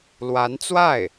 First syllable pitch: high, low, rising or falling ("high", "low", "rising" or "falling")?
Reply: rising